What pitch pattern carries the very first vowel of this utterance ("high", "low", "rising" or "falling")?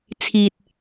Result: low